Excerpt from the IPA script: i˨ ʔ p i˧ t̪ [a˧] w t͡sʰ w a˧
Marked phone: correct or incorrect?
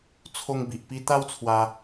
incorrect